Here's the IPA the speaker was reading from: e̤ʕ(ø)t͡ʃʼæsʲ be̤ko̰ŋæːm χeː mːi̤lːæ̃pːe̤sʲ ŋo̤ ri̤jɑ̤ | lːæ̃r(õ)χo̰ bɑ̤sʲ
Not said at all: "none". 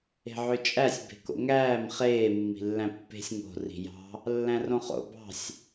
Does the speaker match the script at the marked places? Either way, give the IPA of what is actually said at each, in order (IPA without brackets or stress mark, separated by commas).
ø, õ